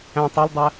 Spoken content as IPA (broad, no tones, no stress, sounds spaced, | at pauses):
æ̃ tˤ ɒ l dˤ æ